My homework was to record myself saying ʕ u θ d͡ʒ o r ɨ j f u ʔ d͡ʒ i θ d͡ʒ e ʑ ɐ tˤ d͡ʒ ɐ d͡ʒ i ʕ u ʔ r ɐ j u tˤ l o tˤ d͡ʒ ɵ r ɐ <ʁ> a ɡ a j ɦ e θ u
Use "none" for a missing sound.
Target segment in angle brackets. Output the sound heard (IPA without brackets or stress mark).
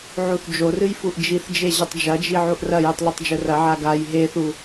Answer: ʕ